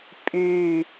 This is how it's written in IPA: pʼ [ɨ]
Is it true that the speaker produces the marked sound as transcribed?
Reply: no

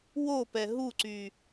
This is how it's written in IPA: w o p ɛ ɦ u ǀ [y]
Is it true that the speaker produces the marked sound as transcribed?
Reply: yes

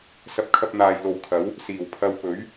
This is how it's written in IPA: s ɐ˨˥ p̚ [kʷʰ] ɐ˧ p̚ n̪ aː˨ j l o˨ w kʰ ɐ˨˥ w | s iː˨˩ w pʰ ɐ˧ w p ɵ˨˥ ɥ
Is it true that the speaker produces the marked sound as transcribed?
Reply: no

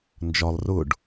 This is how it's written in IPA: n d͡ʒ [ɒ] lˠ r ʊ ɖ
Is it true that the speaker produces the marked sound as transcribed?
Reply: yes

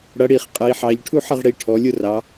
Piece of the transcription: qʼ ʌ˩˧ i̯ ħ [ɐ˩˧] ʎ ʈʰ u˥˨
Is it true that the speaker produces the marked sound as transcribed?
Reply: no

